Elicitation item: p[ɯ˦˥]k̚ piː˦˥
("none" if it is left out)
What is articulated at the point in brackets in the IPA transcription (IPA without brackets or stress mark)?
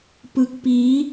ɯ˦˥